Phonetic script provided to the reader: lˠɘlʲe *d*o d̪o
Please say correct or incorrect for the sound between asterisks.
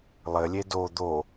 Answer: correct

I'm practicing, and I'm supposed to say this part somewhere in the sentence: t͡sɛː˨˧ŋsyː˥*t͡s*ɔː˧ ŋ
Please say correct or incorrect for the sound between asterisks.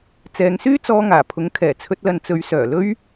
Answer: correct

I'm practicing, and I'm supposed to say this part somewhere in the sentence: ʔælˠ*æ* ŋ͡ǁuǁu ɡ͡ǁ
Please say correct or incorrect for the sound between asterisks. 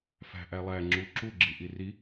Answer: correct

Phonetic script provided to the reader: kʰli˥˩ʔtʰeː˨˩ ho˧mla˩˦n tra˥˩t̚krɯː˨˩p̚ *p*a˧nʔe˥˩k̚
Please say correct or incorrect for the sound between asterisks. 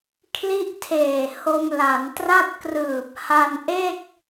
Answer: incorrect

